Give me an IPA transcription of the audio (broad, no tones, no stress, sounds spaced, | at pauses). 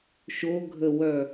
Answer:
ʃ o ɡʱ ə w œ